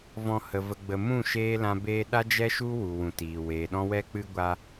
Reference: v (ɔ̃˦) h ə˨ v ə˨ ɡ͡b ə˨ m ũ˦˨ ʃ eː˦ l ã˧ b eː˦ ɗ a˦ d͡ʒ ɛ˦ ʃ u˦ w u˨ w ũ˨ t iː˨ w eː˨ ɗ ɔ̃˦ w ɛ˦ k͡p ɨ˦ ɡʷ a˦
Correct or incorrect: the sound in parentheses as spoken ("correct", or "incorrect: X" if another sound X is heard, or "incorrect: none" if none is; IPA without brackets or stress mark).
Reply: incorrect: ɔ̃˨